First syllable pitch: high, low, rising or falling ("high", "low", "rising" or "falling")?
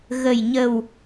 low